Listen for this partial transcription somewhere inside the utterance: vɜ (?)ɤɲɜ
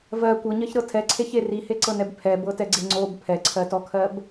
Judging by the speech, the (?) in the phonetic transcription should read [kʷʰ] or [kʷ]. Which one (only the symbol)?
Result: kʷ